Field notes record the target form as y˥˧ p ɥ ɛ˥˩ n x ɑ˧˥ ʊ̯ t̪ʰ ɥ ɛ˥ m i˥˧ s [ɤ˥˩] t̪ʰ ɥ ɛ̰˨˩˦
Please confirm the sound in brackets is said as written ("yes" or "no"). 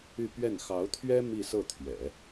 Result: yes